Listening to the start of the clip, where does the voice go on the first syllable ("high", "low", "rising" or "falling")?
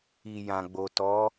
low